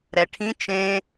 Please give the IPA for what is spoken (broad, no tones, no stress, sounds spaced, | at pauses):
ɾ ɛ ʈʰ ĩ t͡ʃ ẽ